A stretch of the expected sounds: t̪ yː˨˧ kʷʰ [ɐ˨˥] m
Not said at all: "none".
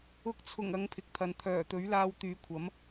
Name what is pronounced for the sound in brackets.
ɐ˨˥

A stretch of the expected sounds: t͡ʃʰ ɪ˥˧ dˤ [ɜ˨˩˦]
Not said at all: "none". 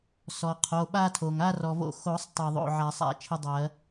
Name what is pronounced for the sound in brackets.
ɜ˨˩˦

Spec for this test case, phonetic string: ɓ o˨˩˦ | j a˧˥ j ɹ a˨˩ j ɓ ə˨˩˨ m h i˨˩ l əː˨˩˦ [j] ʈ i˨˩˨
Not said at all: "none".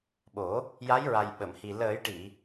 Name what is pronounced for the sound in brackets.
j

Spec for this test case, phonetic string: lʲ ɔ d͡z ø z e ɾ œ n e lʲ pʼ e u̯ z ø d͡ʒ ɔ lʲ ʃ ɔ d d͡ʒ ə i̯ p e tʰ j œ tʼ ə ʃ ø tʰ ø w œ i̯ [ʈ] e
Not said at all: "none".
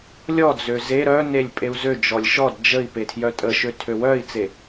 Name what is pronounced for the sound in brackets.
t͡s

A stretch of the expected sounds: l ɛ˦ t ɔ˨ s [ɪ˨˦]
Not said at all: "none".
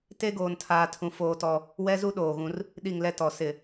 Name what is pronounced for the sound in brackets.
ɪ˦˨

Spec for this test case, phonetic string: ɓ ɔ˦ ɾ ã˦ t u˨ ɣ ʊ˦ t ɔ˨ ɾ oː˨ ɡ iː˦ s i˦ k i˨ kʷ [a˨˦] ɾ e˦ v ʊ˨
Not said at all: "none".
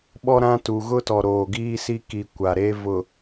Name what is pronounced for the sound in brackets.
a˨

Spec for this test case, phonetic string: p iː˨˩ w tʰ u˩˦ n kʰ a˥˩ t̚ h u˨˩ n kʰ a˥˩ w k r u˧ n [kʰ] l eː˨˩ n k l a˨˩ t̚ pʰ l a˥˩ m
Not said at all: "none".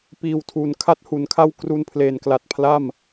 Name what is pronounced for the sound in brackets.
pʰ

